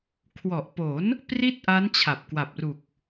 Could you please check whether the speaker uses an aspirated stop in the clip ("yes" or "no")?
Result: yes